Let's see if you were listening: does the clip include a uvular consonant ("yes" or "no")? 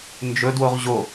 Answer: yes